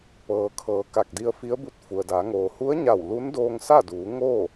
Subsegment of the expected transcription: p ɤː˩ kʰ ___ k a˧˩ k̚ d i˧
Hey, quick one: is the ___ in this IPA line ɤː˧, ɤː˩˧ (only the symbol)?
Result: ɤː˩˧